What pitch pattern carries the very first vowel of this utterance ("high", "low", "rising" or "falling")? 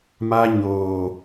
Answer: high